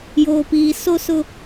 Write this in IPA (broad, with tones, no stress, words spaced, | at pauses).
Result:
joː˨piː˨so˦sʊ˦